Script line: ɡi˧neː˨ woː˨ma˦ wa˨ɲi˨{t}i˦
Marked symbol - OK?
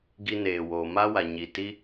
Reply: yes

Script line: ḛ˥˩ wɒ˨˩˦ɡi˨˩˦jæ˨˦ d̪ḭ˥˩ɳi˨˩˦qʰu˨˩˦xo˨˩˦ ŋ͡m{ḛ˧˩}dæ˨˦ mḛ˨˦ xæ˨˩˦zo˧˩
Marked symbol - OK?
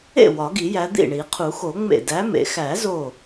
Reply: yes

